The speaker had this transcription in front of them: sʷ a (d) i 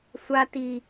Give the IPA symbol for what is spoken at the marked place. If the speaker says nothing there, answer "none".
t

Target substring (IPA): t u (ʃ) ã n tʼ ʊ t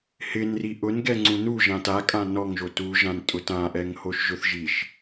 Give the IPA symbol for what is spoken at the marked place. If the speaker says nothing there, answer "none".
ʒ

